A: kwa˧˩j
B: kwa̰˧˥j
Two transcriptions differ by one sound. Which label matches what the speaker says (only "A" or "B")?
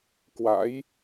B